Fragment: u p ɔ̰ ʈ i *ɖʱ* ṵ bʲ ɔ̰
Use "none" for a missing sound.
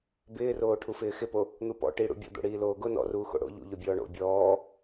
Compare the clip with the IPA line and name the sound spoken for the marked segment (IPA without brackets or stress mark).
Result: ɽ